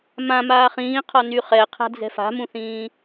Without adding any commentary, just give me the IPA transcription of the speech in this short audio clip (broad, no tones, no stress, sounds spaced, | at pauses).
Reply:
m ã m aː χ ĩː qʰ ɔ n y χ ɛ qʰ a̤ d͡z ɛ̤ f a̤ m ũ θ ĩː